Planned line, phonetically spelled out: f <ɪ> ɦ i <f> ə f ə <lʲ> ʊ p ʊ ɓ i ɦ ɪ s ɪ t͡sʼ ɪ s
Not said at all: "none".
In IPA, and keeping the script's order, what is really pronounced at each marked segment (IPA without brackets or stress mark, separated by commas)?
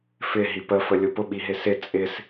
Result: ɪ, p, lʲ